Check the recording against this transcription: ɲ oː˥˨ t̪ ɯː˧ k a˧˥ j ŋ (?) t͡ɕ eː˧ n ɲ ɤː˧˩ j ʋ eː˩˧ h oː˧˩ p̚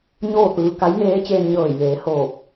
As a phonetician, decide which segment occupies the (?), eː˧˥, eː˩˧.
eː˧˥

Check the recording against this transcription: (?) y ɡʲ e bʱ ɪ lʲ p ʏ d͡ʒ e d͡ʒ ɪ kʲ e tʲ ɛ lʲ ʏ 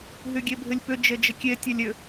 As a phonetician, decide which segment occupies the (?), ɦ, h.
ɦ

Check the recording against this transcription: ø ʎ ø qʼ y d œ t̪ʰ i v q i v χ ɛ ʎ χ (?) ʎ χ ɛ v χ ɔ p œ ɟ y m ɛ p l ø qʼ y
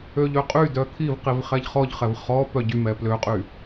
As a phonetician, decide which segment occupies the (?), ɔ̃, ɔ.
ɔ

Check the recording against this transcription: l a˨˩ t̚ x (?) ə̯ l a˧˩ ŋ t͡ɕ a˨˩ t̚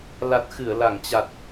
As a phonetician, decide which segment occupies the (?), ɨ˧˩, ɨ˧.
ɨ˧˩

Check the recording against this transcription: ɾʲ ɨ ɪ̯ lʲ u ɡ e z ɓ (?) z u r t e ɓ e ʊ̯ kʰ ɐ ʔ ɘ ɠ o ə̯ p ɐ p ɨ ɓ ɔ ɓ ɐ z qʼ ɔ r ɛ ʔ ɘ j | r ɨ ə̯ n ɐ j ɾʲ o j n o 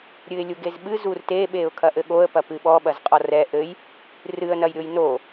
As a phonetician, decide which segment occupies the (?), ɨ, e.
ɨ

